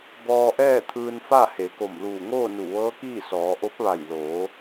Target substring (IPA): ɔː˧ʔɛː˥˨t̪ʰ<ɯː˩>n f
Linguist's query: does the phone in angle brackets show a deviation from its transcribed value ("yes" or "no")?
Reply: yes